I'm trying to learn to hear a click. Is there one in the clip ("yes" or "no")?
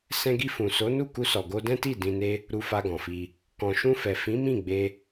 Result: no